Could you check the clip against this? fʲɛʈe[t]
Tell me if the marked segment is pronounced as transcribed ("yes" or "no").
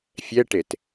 yes